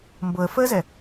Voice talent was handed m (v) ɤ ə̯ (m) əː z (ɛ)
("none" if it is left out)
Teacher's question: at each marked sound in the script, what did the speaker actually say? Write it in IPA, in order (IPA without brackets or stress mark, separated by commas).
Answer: b, f, ɛ